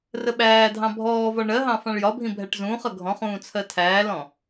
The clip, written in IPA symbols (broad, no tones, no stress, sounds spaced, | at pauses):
r ə ɓ æː dʱ ɑ̃ bʱ ɔː v ɒ ɳ ɜ ɦ ɑ̃ f ɑ̃ ɭ j ɒ bʱ ĩ bʱ æ ʈ z ũː χ ʌ ɡʱ ɔ̃ χ ũː t͡sʰ ɜ tʰ æː l ɔ̃